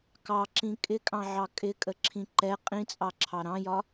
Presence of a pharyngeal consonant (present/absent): present